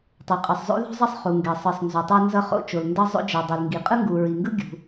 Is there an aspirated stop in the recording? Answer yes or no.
no